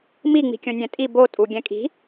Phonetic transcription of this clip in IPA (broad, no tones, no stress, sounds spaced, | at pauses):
m i ŋ͡m i̤ kʲ õ nʲ ɛ̃ tʼ i b o tʼ u ɡʲ ɛ̃ kʼ i̤